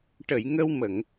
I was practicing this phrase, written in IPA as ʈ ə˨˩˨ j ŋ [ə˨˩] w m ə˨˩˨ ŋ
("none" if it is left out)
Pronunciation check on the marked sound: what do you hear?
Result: ə˧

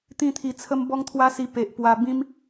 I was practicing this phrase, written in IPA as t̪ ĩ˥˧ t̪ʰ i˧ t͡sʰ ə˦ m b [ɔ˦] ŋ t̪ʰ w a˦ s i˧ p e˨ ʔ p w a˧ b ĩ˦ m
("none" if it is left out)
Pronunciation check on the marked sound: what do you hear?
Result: ɔ˦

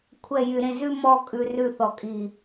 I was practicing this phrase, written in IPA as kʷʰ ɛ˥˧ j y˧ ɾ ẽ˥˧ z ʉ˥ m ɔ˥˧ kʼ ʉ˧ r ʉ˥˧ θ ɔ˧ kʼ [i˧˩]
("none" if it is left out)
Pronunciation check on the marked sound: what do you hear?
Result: i˧˩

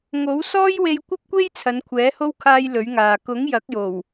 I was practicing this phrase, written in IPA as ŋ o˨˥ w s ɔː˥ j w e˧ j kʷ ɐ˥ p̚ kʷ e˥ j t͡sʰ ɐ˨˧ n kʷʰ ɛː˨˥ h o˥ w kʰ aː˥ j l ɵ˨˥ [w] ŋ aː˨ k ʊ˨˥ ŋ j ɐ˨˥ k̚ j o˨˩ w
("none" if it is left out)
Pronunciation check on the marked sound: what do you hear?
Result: ɥ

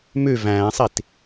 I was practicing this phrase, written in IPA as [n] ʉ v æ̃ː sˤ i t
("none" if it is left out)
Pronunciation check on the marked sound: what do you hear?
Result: m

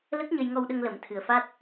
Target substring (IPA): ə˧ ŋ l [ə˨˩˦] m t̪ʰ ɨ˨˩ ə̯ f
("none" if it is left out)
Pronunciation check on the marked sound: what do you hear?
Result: ə˨˩˦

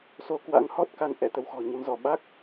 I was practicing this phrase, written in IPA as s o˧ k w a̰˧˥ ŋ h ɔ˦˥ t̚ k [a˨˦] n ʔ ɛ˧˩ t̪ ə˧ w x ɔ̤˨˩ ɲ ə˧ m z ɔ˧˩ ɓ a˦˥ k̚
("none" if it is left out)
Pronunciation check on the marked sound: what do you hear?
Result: a˧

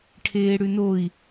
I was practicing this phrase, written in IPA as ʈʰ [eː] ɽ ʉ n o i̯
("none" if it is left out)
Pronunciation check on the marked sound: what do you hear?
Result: eː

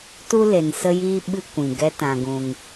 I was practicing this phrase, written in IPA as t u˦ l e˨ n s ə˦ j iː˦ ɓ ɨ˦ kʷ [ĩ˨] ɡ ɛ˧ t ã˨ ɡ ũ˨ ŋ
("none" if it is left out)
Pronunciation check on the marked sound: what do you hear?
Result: ĩ˨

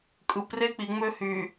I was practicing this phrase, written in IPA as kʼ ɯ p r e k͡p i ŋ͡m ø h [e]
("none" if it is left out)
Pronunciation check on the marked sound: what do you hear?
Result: y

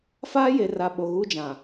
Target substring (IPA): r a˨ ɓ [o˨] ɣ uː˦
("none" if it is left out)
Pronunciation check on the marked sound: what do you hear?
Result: o˨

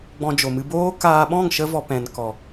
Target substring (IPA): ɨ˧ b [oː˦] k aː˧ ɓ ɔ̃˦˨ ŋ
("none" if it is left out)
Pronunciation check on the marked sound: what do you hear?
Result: oː˦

